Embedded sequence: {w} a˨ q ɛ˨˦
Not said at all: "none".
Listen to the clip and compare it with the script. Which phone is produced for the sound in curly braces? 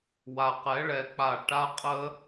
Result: w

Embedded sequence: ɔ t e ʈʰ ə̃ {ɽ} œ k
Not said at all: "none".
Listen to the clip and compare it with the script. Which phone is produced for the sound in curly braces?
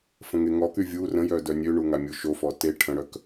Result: ɽ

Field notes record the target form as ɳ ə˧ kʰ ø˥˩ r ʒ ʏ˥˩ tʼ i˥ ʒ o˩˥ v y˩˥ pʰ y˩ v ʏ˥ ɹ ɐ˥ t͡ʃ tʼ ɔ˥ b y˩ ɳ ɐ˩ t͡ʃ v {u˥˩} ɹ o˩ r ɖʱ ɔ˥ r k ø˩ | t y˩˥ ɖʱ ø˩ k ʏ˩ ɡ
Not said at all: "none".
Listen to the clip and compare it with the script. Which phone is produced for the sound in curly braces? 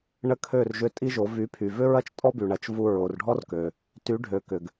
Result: u˧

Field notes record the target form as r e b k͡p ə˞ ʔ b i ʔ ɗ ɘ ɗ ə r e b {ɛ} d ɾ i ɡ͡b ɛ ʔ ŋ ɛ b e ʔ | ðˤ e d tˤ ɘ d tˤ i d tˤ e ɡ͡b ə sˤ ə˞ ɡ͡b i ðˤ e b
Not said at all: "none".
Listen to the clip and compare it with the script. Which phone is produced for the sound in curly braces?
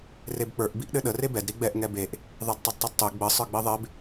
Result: ɛ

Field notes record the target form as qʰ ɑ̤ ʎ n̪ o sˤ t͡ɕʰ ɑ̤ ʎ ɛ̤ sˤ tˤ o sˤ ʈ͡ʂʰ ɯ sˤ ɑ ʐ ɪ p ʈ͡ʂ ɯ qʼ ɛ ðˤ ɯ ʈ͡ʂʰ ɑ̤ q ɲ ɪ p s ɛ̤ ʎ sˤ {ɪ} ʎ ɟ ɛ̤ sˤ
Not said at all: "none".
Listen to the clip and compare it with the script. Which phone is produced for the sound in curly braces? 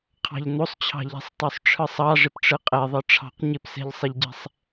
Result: ɪ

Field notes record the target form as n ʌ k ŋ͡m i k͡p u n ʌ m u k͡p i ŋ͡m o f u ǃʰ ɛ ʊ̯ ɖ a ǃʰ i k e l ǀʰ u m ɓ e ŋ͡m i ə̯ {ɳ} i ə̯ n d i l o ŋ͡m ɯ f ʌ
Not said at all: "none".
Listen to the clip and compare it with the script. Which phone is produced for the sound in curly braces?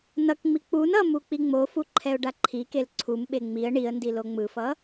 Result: ɳ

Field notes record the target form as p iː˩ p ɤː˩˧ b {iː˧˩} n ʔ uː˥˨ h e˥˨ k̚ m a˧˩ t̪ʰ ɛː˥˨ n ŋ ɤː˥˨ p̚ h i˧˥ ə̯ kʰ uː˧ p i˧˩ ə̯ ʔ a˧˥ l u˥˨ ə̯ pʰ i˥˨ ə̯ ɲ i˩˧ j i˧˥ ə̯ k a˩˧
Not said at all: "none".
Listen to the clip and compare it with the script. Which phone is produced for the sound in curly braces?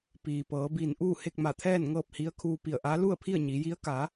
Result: iː˧˩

